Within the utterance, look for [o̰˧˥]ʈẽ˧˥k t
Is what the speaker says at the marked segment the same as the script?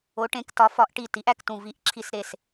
no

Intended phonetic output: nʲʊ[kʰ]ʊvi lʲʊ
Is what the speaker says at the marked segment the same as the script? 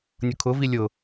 yes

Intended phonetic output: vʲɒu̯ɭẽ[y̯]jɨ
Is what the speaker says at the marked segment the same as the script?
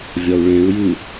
no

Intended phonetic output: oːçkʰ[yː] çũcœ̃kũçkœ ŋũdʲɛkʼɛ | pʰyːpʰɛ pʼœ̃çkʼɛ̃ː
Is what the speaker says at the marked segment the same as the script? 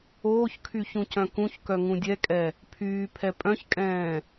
no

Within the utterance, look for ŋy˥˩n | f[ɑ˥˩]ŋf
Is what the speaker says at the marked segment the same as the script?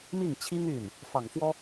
no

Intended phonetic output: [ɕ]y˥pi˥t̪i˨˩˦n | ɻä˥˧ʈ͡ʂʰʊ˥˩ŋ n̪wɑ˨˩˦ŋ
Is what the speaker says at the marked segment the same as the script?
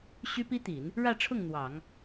yes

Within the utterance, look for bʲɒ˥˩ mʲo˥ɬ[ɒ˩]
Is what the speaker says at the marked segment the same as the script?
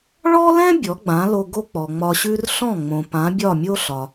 yes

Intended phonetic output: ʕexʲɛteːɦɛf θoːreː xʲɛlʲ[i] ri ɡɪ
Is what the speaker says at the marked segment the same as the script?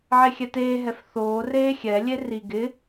no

